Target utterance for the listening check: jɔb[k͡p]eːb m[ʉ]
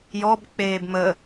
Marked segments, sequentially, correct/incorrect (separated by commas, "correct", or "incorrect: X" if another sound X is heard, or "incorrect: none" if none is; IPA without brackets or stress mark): correct, incorrect: ə